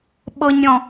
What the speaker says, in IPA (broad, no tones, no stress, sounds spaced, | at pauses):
ɓ ɤ ɲ ɾʲ ɔ̃